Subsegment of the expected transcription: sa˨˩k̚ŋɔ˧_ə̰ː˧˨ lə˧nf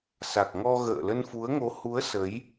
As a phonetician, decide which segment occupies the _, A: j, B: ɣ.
B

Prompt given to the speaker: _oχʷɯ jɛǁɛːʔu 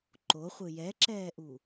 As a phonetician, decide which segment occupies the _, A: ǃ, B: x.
A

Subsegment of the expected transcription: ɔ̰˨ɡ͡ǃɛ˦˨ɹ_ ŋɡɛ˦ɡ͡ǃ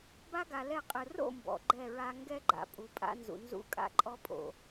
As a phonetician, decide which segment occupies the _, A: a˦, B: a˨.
A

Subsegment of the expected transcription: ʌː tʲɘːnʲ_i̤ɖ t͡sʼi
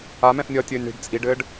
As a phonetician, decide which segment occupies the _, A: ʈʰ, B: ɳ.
B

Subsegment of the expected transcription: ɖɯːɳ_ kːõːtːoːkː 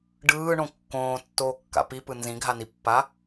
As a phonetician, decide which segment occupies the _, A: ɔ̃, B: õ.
B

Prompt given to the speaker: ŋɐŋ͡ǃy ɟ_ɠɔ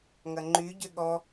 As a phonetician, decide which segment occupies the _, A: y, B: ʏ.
B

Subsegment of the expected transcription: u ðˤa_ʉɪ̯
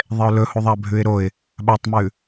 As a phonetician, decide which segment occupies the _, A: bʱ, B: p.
A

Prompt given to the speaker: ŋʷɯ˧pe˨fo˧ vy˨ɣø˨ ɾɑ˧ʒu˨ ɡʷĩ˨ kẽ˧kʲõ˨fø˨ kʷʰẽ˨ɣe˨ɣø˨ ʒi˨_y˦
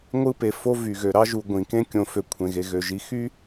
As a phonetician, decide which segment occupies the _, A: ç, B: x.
B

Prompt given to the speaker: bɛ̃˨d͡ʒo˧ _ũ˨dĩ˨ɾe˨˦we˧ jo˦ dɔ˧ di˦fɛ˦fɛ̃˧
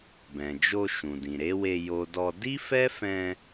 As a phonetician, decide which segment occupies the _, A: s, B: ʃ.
B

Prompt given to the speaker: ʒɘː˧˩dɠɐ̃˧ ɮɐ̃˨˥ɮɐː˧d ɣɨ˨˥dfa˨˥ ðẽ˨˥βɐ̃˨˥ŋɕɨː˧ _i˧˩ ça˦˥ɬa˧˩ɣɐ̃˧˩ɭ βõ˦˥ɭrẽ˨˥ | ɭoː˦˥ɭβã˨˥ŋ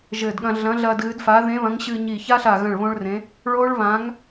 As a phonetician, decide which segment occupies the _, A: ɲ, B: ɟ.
A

